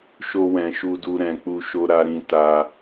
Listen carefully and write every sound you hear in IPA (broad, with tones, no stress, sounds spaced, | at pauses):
ʃ o˧ w ɛ̃˨ ʃ u˧ d u˧ ɾ ɛ̃˨ k͡p u˧ ʃ o˧ ɾ a˧ ɾ ĩ˧ t a˧